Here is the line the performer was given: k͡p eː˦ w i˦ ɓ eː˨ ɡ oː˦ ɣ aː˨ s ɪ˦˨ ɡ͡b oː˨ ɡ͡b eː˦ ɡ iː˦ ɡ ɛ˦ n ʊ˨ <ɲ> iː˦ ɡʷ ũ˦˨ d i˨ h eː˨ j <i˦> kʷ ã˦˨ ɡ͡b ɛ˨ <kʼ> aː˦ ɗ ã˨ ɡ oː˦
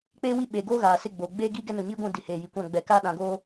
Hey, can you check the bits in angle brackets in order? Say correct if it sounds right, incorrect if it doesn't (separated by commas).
correct, incorrect, incorrect